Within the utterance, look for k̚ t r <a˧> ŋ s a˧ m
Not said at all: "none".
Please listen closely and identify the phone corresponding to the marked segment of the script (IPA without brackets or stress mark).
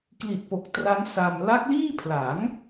a˦˥